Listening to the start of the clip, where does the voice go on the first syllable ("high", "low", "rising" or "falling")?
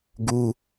high